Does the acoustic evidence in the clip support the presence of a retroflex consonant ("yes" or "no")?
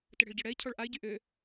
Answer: yes